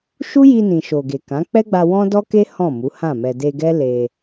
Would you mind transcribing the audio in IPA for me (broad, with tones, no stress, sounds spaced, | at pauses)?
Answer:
ʃ u˦ j i˧ n ĩ˨ ʃ o˨ ɡ e˨ k ã˨˦ k͡p ɛ˦ ɡ͡b a˧ w ɔ̃˦ d ɔ˦ k e˦ h ɔ̃˦˨ m u˨˦ h ã˦˨ m ɛ˧ d e˧ ɡ ɛ˦ l e˧